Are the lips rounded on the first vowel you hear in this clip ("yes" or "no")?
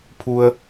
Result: yes